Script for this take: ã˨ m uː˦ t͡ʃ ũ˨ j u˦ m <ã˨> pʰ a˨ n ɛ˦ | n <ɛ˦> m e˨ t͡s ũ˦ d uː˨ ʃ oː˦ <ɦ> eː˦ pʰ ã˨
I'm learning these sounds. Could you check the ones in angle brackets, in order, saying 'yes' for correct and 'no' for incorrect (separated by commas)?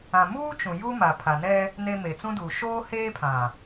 no, no, no